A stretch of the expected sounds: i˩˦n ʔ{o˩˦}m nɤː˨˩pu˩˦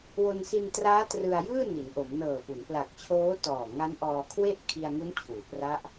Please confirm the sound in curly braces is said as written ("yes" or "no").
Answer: yes